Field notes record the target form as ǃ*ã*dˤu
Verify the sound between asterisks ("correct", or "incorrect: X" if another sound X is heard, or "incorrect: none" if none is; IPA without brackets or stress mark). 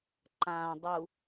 correct